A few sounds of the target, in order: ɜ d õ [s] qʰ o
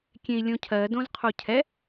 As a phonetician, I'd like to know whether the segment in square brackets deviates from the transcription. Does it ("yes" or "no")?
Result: yes